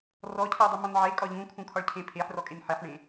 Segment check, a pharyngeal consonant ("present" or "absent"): present